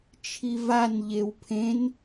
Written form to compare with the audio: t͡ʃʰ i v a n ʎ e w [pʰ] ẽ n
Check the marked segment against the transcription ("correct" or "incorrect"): correct